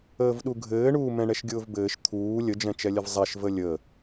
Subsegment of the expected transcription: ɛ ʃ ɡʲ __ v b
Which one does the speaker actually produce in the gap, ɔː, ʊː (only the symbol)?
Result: ʊː